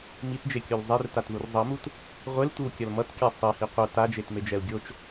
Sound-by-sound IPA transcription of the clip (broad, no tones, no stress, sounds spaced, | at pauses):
m i t d͡ʒ e kʲ o l zˤ e r t a t ð u r zˤ ʌ m u t | ʁʷ e l tʷ ɯ w kʲ ʌ l m ʌ t kʲ a sˤ i h i qʷ ʌ t a d͡ʒ e t m e d͡ʒ ɛ u̯ ɡʲ o t͡ʃ